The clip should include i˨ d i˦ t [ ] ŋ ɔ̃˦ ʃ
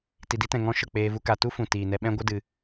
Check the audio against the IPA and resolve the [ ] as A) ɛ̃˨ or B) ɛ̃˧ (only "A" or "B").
A